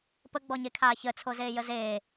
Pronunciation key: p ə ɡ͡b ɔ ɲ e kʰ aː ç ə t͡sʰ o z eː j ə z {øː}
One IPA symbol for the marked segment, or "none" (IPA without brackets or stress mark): eː